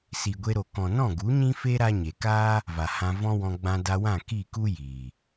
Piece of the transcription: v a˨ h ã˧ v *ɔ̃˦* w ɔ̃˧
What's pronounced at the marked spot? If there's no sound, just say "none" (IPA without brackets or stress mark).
ɔ̃˦